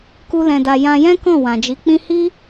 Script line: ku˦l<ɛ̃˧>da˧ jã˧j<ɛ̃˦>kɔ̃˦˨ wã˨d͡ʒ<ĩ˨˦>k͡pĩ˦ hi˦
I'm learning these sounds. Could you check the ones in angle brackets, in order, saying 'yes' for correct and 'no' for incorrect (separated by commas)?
yes, yes, no